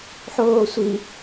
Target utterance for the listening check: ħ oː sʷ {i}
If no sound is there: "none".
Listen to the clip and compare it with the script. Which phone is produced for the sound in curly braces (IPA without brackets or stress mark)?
i